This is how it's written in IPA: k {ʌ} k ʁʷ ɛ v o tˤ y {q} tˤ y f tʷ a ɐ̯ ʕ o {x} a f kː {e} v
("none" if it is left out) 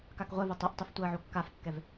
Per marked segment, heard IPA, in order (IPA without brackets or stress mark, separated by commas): a, ʔ, kː, ɛ